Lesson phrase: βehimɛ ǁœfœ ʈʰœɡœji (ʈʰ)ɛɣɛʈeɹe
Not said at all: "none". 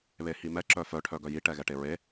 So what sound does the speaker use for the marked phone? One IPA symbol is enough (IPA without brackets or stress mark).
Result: ʈ